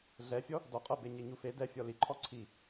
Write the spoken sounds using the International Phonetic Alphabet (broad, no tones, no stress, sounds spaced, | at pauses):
ɮ ɛ fʲ ɔ | d ɔ qʼ ɤ b e ɲ e ɲ u f e d ɛ fʲ ɔ l i ǃʰ ɔ ǀʰ i